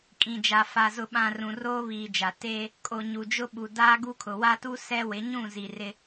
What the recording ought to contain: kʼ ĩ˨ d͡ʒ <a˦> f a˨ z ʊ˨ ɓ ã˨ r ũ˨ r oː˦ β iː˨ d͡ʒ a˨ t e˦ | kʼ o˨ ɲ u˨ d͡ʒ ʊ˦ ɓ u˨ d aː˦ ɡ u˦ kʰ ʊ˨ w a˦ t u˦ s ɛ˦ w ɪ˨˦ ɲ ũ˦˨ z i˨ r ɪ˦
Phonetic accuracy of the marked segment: incorrect: a˨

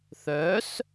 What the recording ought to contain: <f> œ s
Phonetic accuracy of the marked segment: incorrect: θ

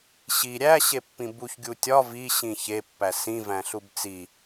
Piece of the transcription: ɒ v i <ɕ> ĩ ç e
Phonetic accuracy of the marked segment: correct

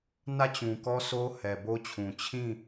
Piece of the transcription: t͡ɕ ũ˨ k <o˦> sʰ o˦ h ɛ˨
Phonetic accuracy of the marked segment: incorrect: ɔ˦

